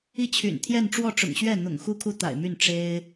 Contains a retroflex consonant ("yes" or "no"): yes